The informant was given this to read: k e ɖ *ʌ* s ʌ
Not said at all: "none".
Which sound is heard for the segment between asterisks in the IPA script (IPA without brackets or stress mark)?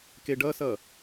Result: ʌ